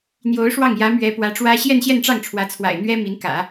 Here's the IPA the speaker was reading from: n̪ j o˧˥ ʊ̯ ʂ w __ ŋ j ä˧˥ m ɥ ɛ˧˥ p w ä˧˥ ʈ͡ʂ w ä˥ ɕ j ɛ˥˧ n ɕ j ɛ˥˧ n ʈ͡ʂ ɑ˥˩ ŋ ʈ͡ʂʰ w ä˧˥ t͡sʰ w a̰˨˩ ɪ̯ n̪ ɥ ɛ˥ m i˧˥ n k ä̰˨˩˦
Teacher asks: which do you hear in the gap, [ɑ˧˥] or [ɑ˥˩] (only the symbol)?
ɑ˥˩